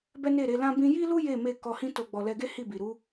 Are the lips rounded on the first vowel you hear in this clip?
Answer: no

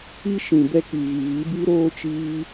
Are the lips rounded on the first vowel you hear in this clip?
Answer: no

